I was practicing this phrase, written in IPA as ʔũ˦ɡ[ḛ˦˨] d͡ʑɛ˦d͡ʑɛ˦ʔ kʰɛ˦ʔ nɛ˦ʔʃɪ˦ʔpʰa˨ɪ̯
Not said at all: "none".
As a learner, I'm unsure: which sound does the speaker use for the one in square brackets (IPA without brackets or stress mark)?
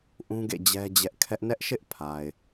ḛ˦˨